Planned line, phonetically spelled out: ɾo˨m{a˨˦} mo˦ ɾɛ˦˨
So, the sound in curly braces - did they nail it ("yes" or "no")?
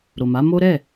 yes